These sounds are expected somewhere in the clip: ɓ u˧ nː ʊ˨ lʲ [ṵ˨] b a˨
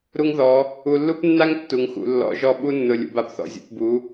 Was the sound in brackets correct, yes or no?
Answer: yes